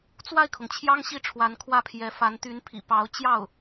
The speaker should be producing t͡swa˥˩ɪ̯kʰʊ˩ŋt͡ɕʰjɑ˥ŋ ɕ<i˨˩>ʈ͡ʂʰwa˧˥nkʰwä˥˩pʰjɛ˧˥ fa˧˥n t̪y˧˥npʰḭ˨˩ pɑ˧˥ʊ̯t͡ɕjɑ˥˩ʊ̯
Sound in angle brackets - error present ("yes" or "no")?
yes